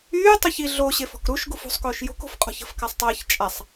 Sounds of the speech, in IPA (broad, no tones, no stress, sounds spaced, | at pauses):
yː tˤ o ç i ɮ o ɕ e f ɔ̤ k ɾ u ʃ ɡ u f ṳ sˤ k oː ʃ j o̤ k o̤ f qʼ ɔ̤ ç ə̤ f k a sˤ tˤ əː ç t͡ʃʼ a sˤ